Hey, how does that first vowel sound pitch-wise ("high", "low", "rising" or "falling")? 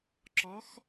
rising